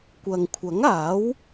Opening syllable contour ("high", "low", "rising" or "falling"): low